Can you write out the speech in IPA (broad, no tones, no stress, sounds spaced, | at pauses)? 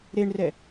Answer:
ɾ e ɳ r ɛ